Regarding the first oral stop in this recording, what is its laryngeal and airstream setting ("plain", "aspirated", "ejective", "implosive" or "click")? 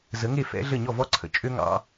click